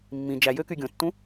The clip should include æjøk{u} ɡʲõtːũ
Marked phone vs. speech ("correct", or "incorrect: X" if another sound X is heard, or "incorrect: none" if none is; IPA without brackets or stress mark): incorrect: y